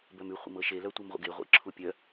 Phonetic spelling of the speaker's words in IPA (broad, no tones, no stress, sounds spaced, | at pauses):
b œ m ʉ χʷ ḛ m ɤ ʃ e l œ tʷ e m ʁʷ ə̰ ɡ e ʁʷ ḛ ǁʰ u pʲ œ